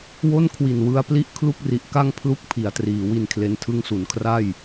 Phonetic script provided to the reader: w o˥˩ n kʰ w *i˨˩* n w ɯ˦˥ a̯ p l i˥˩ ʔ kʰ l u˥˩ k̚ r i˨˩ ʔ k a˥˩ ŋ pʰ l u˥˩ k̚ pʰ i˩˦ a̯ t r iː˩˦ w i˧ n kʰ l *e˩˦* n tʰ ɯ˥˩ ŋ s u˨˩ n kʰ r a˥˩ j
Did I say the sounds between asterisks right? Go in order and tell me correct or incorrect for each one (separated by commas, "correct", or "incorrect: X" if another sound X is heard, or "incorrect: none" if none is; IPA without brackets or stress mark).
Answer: correct, incorrect: e˧